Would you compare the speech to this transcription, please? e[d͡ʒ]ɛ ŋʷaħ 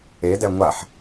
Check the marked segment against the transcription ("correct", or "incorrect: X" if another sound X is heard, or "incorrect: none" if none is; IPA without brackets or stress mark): incorrect: d